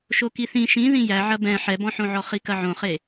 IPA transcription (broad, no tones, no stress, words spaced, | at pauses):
ʃokiθĩ ʃĩ ðĩjæʕɐ bɛ̃ ħɛbɔ̃ħõʕɔ χikɐʕõχe